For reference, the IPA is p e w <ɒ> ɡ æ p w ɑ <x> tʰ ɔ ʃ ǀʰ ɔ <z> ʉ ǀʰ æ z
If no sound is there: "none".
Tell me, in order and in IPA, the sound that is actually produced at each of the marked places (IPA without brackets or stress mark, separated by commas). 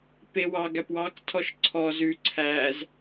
ɑ, k, z